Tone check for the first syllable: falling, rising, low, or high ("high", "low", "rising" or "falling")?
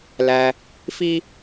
low